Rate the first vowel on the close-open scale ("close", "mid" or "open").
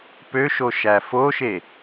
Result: mid